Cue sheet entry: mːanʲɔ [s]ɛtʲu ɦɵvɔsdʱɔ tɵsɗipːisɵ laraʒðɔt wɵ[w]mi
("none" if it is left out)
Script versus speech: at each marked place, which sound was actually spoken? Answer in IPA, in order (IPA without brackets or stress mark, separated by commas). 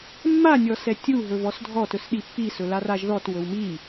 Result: s, w